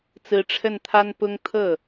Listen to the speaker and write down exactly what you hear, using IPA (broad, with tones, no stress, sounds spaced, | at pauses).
t͡s ɹ̩˧˥ ʈ͡ʂʰ ə˥˩ n t̪ʰ a˥ n p ʊ˥ ŋ t̪ʰ ɤ˥˩